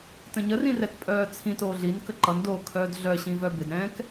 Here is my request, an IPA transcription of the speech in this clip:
t ə̃ ɲ ə r ĩ r ɛ t pʼ œː t͡sʰ ĩ t oː ɮ i n k ə ǃ ʌ n d oː kʰ œː d ɮ œ ɕ ĩ v œ b ɪ d ɾ ɛ̃ː k

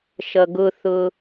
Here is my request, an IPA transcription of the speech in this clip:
ʃ ʌ ɡ ʊ θ ʊ

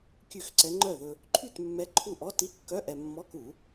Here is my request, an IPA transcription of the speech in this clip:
kʲ ʉ˥˩ x ǀ ɛ˧˥ ŋ͡ǃ œ˥˩ ð ɵ˧ | ǃʰ y˥˩ t mː ɛ˧˥ ǃʰ u˥˩ ʔ ɔ˧˥˧ t i˧˥˧ kː œ˧˥˧ ʔ ɛ˧ mː ɔ˧˥˧ k u˨˩˦

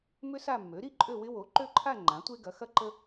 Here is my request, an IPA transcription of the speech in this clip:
m ʏ˥ s a˥˧ mː ø˩˥ ɾ i˥ ǃʼ ø˥˧ w ɪ˥ w o˩˥ ǃ ø˥˧ ǃʰ a˥˧ ŋ͡ǃ ã˩˥ tʷ e˥ ɡ ɐ˩˥ x ɐ˥ ǃ ə˥

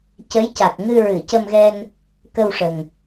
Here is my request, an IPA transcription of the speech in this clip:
c ə˧˥ j c a˨˩ k̚ ŋ ɨ˧ ɹ ɨ˨˩˨ c ə˧ m ɣ ɛ˧ n | k ə˧ w ʂ ə˨˩ ŋ

